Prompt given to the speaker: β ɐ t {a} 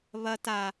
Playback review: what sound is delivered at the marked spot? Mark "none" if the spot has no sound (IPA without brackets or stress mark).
a